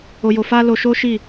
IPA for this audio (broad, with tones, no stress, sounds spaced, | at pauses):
o˧ j o˧ f a˦ l o˧ ʃ o˦ ʃ i˦˨